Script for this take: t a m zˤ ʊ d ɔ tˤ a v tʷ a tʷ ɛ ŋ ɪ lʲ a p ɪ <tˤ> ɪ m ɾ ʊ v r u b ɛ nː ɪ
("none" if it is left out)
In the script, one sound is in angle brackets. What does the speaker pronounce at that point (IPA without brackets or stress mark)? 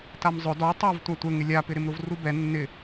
ɾ